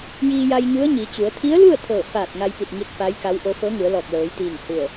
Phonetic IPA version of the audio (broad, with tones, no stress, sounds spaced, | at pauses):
j iː˧ j a˧ j ɲ u˧˥ ə̯ ɲ iː˩˧ t͡ɕ u˩˧ ə̯ t̪ʰ i˧˥ ə̯ l u˥˨ ə̯ t̪ʰ ɤː˧˩ f aː˧˩ t̚ ŋ a˧ j p i˧˩ t̚ ŋ i˧ t̚ f a˧˥ j k a˧˥ w ʔ o˧˥ f ɤː˧˥ ŋ u˩˧ ə̯ l ɔː˧˩ k̚ l ɤː˩˧ j t̪ iː˧˩ ŋ h u˧˩ ə̯